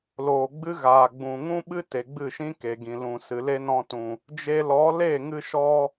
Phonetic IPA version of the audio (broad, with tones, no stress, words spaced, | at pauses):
loː˨ɡ͡bɨ˦ɣaː˨ɡ͡bũ˨ ŋũ˦ɓɨ˦ te˨ɡ͡bɨ˦˨ʃĩ˦ ke˨ɡĩ˨lũ˨ sɨ˨le˦nɔ̃˧tũ˨ | d͡ʒe˧lɔ˨˦ le˦˨ŋɨ˧ʃɔ˧